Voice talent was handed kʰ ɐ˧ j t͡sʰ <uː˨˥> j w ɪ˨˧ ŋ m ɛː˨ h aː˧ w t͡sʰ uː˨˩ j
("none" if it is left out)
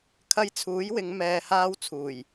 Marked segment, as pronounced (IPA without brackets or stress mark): uː˨˥